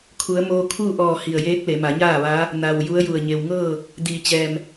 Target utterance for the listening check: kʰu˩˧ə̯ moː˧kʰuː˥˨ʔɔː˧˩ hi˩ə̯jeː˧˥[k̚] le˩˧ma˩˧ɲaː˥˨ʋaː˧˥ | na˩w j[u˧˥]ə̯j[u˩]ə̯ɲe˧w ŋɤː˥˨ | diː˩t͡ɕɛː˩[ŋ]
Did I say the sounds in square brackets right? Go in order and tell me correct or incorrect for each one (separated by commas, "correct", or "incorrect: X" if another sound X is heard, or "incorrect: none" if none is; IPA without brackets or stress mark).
correct, correct, incorrect: u˧˩, incorrect: m